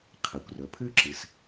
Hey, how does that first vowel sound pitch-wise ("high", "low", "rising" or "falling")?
low